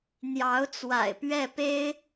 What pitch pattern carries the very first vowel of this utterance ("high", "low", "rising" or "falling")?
rising